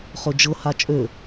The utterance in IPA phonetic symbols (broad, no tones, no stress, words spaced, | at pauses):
χɵd͡ʒɤ hat͡ʃʼø